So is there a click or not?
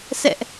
no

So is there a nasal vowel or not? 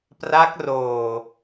no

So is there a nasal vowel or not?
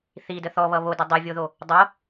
no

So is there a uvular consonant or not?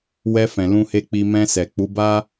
no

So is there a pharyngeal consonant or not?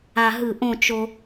no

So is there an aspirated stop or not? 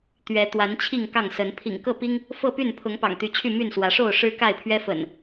yes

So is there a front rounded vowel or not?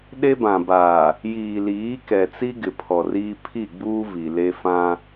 no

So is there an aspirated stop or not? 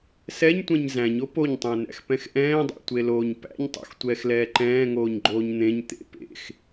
no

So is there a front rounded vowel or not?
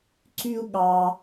yes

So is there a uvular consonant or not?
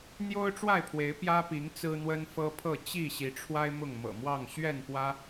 no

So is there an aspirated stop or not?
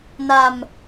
no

